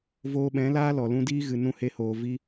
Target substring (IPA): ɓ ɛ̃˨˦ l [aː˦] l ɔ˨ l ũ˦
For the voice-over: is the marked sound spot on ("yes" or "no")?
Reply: yes